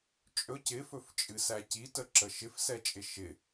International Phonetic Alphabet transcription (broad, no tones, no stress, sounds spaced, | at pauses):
t͡ʃʼ ɵ c ɪ f ɵ f t͡ʃʼ ɨ s æ c i t ə ǁ ə ʃ ɪ f s ɛ t͡ʃʼ ɪ ʃ ɪ